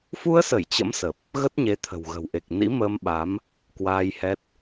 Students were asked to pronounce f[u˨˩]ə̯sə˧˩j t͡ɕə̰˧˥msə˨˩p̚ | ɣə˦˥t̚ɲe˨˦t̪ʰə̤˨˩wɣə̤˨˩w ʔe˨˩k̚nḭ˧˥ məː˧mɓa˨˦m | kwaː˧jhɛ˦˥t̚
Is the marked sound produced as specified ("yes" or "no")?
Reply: no